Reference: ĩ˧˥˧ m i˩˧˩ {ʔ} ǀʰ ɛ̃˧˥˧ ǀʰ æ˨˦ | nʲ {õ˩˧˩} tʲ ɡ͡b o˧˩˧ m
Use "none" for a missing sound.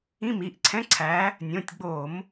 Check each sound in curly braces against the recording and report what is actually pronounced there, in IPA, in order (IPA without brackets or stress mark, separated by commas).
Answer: ʔ, õ˩˧˩